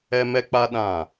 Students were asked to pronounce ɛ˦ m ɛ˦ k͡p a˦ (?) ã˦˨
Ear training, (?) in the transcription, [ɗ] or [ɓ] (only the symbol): ɗ